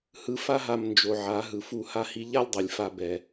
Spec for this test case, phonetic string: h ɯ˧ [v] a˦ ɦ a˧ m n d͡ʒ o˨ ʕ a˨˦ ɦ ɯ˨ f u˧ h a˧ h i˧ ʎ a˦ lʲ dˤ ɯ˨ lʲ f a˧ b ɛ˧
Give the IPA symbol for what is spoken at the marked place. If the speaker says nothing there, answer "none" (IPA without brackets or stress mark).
f